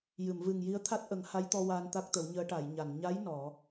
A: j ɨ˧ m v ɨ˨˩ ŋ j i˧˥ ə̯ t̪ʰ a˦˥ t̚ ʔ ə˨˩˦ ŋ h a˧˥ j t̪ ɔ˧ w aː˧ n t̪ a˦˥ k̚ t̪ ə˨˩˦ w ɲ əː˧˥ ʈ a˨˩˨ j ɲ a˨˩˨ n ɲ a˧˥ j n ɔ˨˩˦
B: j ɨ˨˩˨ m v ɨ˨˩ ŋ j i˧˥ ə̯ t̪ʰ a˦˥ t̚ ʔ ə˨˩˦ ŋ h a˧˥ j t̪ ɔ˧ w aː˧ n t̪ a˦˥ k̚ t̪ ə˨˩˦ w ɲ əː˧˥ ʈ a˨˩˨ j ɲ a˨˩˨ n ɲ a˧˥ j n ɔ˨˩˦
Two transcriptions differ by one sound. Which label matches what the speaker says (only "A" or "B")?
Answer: B